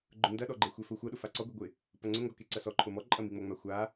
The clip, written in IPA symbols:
ɡ͡ǃ ʊ n d ɐ ɗ ɔ ɡ͡ǃ e xʷ e f ʊ xʷ ɐ ɗ ʊ f a ǀ ɔ ɡʷ i ɡʷ ɪ | p ɐ ŋ͡ǀ ʊ ŋ ɡ ɔ k e ǀ ɐ s ɔ ǃʰ ʊ m ɔ ǃʼ ɐ m i ŋ͡m ɐ ŋ͡m a xʷ a

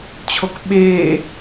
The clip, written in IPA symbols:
t͡ɕʰ o k ɓ eː

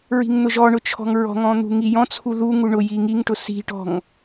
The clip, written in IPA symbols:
ɹ i̤ ŋ n̪ ʊ ʒ ɔ ɳ ʊ t͡ʃʰ ɔ̤ ŋ ɹ ɔ̤ ŋ ɔ̃ n̪ ṳ ŋ i j ɔ̃ t͡sʰ u ð u ŋ u ɳ ʊ j i ŋ i ŋ ʈ ʊ s i̤ ʈ ɔ̤ ŋ

